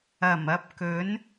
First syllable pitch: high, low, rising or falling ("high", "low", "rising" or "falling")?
low